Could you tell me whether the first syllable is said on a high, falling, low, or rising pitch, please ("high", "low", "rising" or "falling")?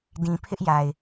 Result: low